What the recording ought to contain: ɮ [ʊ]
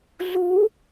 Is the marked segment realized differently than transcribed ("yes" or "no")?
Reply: yes